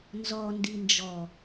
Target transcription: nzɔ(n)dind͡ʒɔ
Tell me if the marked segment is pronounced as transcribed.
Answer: yes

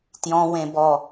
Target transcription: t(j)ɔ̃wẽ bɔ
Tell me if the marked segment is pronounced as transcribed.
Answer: yes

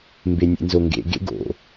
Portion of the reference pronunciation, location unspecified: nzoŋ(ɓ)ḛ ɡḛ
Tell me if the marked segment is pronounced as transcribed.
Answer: no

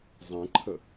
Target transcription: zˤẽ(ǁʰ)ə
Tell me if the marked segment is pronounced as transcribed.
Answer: no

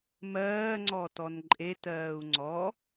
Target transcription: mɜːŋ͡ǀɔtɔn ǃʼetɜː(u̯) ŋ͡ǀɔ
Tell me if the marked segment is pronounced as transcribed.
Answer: yes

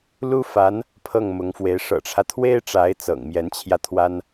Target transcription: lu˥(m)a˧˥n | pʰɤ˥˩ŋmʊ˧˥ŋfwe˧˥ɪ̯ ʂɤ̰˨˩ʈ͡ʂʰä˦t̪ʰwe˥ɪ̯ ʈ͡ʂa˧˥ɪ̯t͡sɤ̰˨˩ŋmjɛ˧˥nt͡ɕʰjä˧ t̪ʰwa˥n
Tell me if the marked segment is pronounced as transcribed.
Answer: no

